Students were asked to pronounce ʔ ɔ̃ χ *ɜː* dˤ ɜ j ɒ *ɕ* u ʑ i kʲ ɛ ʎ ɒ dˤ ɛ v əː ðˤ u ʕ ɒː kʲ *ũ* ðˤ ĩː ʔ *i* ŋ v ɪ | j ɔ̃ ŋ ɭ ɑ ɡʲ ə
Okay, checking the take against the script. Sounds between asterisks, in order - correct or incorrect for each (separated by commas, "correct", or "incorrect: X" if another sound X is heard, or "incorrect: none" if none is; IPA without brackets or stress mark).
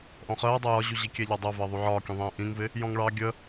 correct, incorrect: ʑ, correct, incorrect: ĩ